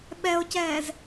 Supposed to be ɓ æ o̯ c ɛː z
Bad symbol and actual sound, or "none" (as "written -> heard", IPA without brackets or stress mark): æ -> ɛ